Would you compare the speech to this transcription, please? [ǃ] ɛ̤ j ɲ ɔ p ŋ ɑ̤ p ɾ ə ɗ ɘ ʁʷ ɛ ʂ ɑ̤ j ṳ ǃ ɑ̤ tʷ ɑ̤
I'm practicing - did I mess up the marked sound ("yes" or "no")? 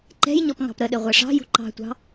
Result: no